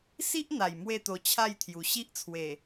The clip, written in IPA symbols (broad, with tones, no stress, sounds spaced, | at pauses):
s i˦ ʔ n̪ a˨˩ j m w e˥˧ t̪ o˧ t͡ɕʰ a˥˧ j t̪ʰ j u˨˩ ɕ i˦ ʔ t͡sʰ w e˨˩